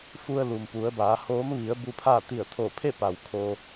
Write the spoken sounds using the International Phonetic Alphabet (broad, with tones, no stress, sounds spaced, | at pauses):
f u˧ ə̯ l u˩ m p u˩˧ ə̯ b aː˩˧ h oː˧˥ m ʋ i˩˧ ə̯ b u˧ pʰ aː˥˨ t̪ i˧˩ ə̯ t̪ʰ o˧˩ pʰ e˥˨ p a˩ w kʰ o˧